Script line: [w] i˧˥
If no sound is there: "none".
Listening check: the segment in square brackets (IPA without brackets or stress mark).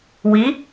w